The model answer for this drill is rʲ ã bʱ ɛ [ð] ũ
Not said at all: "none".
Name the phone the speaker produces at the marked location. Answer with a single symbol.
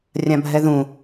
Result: ð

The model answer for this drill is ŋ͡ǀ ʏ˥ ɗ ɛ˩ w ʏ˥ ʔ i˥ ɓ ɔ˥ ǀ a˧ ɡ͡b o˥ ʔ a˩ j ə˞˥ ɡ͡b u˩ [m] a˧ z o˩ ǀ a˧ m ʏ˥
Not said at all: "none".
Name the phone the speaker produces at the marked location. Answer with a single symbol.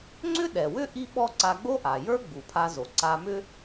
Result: pʰ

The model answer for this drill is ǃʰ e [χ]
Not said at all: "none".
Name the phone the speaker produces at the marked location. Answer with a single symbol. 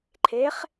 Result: χ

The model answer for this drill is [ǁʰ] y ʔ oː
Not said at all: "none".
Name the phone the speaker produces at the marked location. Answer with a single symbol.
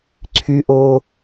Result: ǀʰ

